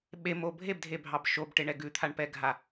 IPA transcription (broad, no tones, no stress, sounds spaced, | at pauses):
ɓ e m o bʱ e b dʱ e bʱ ɑ b ʃ o b ʈ e ɳ ɛ ɡ ʉ t̪ʰ a ɳ p ɛ ɡʱ a